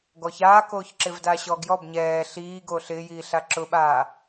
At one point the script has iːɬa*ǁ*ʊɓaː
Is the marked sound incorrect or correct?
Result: correct